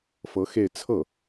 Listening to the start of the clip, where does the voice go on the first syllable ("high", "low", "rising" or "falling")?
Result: rising